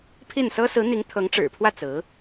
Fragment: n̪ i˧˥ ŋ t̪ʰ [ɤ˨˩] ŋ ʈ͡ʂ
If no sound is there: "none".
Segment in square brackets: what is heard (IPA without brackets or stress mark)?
ɤ˧˥